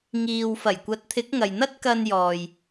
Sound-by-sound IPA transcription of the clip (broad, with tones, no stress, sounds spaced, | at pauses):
ŋ iː˨ w f ɐ˨˩ j kʷ ɐ˨˥ t̚ t̪ʰ ɪ˨˥ k̚ ŋ ɐ˨ j n̪ ɐ˥ t̚ k ɐ˧ n j ɔː˨ j